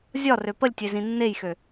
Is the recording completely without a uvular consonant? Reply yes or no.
yes